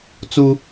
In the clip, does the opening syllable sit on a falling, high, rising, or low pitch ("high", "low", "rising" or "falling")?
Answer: low